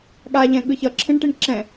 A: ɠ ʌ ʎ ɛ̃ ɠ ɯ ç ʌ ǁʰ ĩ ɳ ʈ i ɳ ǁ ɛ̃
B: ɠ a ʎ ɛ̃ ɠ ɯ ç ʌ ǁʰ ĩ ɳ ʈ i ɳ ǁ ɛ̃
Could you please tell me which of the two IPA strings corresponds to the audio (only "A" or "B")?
B